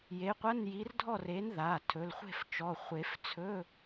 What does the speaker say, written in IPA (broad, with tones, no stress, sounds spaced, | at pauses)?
j e˨˥ qʷ ɐ˧˥˧ n j i˨˥ r dʱ ɔ˥˨ r e˨˥ n ð a˩˧˩ tʰ ɵ˩˧˩ l χʷ e̤˥˨ f t͡ʃ ɔ˩˧˩ χʷ e˨˩˦ f t͡sʰ ɵ˧˥˧